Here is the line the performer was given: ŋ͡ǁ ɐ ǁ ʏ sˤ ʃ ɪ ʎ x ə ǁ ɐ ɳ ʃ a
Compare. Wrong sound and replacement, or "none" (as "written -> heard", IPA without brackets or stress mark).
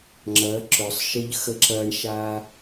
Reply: none